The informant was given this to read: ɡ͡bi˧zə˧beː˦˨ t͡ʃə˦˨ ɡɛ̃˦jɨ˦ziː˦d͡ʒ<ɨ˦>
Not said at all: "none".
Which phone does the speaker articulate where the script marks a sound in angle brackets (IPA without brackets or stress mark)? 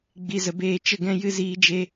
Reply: e˦